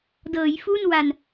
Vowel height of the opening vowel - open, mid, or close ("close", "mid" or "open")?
mid